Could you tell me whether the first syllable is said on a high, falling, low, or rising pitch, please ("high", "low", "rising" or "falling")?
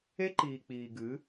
high